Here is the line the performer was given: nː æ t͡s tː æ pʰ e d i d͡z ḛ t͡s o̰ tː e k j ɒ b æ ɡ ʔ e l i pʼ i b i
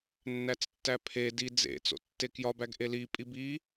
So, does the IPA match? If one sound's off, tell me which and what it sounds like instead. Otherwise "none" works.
none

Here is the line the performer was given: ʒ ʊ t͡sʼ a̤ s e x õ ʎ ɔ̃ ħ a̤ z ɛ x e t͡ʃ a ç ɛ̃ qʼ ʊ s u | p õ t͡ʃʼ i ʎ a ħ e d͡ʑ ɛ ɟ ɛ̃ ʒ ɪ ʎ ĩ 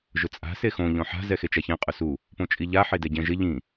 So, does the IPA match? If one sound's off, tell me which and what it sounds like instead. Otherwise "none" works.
d͡ʑ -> d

